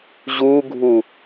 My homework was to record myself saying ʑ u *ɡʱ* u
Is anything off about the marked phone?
no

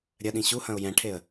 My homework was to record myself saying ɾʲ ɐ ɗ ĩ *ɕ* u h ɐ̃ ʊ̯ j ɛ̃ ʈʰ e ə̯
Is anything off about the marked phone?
no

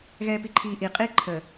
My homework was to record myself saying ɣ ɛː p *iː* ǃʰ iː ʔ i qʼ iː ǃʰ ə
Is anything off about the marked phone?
yes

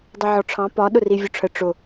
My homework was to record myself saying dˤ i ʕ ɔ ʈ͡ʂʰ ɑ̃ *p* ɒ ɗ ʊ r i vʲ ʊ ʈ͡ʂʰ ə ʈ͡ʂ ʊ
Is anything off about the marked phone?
no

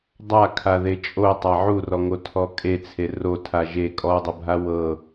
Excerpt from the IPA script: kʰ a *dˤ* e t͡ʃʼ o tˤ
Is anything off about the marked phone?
yes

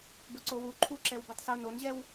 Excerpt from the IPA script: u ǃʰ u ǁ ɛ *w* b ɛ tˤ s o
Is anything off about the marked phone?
no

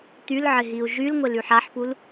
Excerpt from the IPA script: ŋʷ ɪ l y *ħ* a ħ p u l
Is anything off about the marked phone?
no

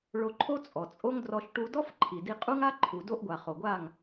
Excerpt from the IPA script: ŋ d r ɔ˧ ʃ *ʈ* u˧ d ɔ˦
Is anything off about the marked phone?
no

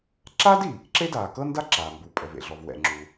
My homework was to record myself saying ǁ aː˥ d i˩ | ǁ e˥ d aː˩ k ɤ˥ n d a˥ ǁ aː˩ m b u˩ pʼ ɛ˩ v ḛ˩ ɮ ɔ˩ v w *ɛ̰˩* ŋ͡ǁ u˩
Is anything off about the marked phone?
no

